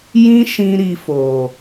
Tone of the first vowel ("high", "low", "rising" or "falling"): high